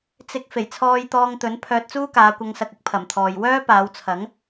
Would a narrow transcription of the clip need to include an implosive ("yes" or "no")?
no